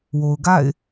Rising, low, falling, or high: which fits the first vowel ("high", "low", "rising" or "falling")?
low